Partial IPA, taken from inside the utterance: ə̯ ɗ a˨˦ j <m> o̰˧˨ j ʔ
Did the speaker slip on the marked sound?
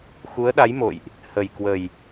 no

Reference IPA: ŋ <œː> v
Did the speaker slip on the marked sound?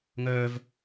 no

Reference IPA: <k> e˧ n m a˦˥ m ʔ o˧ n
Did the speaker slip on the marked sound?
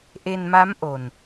yes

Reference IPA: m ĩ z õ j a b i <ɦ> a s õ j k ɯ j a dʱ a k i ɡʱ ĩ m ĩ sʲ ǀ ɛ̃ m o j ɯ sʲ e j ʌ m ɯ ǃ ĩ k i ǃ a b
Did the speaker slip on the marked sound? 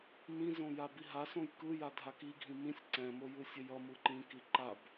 no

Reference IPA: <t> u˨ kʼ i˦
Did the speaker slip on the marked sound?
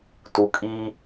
no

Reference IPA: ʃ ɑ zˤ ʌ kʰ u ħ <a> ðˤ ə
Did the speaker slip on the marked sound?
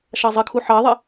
yes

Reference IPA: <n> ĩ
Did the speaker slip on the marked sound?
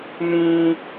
no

